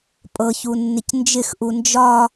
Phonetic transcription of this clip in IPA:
pʼɤçu nːɪcnd͡ʒɪxʔu nd͡ʒɒ

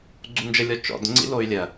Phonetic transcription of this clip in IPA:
ɡ͡ǀund͡ʒə lʲɔt͡ʃɔ̰d ŋ͡ǀḭloy̯lʲɜ

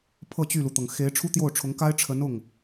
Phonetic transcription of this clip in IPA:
pʰɤ˥˧t͡ɕy˥˩lu˩t̪ɤ˩ŋ xe˧˥ɪ̯ ʈ͡ʂʰu˥t̪jo˥˩ʊ̯ʈ͡ʂʰʊ˧˥ŋ ka˥ɪ̯ʈ͡ʂʰə˧˥n ʊ˥˩ŋ

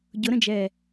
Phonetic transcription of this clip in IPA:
ɟʊɾə̃d͡ʒɛː

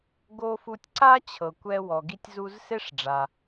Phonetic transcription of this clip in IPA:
ɡo˧ fu˧tʲǀa˥t͡ɕʰɤ˩kʷɛ˧ wɔ˩ ɡi˧tʲzu˧z se˥ʂɖ͡ʐa˩

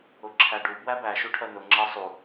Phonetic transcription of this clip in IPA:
ʊǁʰæɖu bwæbæ ʃuʈʰɜnʊ ŋ͡ǁɜsˤu

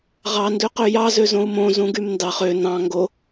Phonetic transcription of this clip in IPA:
ʁɑ ndøqøjɑ zøzõu̯mõ zũɡymndɑχ ø nɑ̃ ŋɡo

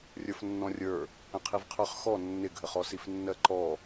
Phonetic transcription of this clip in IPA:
rʲə˞fnːɔ̃rʲə˞ | ə̃qʰivqʰə˞χxɔ nːɪɡʱəχɔsif nːɜǃɔ

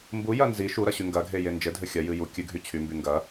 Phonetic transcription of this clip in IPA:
mbujɐ nzi ʃuɾɐɕy ŋɡɐɡʱeje nd͡ʒɘdʱɘ xʲɐjɨ ju kʲɨɡʱy t͡ɕʰymby ŋɡɐ

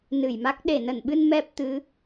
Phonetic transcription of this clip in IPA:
nɨ˧˩jma˦˥k̚ ɗe˧˩nə˧˩nɓɨ˧n mɛ˦˥p̚t̪ɨ˨˦

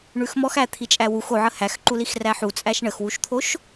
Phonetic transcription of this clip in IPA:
ɳʉxmɔxæ t̪ʰit͡ʃʼæwux oʕə hæxǃulix ræħu t͡sʼæʃɳəxwuʃt̪ʰoʃ

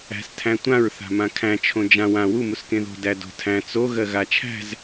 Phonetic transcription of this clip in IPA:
æ̤s tʰæ̃tʷãɹ θa̤mãkʰæ̃ t͡ʃʰõd͡ʒã wã wu muskẽðo̤ dædo̤tʰæ̃ t͡so ɣɜɣat͡ʃʰæ̤z

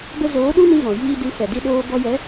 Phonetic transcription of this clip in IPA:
bə˧ zoː˨˦ɗu˦nĩ˧ ɣɔ̃˨jiː˧dɨ˨˦ fɛ˨ di˧ɗoː˧ bɔ˧jɛ˨˦

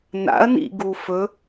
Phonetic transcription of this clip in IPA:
na̰ɐ̯nḭ ɡufɵ

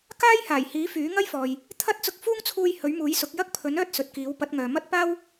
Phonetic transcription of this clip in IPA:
kaː˥jhaː˨˩jhiː˨˥ fyː˨˥ŋɐ˥jfɔː˨j | t̪ʰɐ˥t̚t͡sʊ˧k̚fuː˥ŋt͡sʰuː˧j hɵ˨˥ɥmuː˨˥jsʊ˨˥k̚ jɐ˥k̚pʰɵ˨˥n œː˥t̚sɵ˨t̚kiː˨˥w pɐ˨˥t̚ŋœː˨mɐ˥t̚paː˥w

